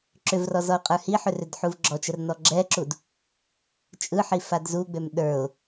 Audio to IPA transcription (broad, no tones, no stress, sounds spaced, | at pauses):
ǁ ʏ v r ɔ z ɔ ʊ̯ qʼ ə˞ h i ħ ʏ r ʏ d ħ u v ɡ͡ǁ ɔ t͡ʃ ə r n ɔ ɡ͡ǁ ɛ ǁ u d | t͡ʃʼ ɯ ħ i f a d z u ɡ͡b ø m ɗ ə˞ ʊ̯